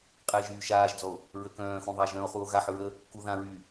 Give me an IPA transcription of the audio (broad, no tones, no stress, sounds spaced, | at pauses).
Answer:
qʼ ɛ e̯ ʒ yː ʃ aː ʒ d͡z ɔ o̯ | ɹ ə k œ̃ː x ũ ðˤ a ʒ œ̃ o̯ χ u o̯ ɣ a ħ ɹ ə | k u ð ã ɹ yː